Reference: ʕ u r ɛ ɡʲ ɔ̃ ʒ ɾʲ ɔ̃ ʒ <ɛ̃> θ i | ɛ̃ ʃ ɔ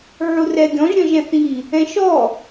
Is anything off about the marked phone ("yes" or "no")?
no